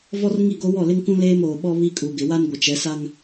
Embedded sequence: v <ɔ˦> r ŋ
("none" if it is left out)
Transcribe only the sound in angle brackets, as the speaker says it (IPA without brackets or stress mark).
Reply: ɔ˦